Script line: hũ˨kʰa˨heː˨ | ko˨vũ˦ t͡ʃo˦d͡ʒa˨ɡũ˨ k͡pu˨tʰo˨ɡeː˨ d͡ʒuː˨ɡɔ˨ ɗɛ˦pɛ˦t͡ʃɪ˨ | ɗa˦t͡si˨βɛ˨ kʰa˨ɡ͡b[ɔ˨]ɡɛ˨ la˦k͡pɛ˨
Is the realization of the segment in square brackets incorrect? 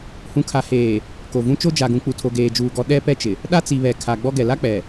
yes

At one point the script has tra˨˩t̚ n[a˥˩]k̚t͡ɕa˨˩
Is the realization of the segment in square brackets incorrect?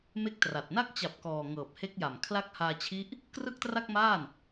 yes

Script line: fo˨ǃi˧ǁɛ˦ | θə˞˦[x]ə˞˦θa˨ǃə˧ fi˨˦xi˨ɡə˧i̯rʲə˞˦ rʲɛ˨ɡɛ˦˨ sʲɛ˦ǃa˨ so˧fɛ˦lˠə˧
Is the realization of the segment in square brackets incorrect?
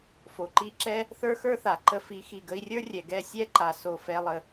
no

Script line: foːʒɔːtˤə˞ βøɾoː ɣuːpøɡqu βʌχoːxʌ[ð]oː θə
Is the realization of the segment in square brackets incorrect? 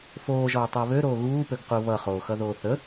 no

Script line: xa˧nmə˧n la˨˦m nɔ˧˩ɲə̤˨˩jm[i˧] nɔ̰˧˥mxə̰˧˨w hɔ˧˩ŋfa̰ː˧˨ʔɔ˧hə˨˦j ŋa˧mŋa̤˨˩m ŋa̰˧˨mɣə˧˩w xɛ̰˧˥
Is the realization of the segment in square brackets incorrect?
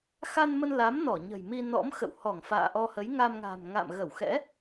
no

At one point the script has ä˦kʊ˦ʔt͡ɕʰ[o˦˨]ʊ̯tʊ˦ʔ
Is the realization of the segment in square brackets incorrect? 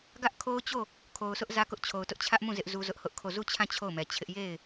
yes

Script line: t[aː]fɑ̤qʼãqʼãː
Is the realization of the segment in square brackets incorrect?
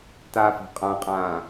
no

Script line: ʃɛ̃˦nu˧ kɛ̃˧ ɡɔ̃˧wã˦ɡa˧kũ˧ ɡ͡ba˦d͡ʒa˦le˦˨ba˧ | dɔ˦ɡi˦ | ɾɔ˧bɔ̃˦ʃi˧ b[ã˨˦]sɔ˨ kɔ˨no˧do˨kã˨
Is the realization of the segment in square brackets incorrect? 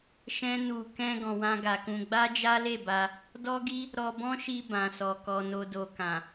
yes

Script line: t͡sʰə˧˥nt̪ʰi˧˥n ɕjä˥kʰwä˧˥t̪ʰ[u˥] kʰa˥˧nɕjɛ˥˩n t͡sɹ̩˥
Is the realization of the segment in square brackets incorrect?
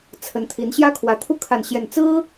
no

